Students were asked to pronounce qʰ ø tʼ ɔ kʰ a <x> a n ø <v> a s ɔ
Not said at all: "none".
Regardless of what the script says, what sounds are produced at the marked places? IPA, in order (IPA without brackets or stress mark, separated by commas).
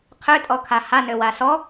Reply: h, w